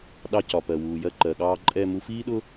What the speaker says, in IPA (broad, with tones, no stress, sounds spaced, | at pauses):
ɗ ɑ˨ c ɒ˩ p ɜ˩ w uː˩ j ɜ˨ ǃ ɜ˩ ɠ ɑː˨ ǃʼ ɛ˨ m u˨ f iː˦ ɗ ʊ˦